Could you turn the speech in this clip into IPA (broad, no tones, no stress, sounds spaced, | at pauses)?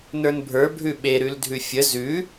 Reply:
n ə˞ n bʱ ə˞ bʱ ʉ ɓ e ɾ ʉ l dʱ ʉ fʲ ə z ʉ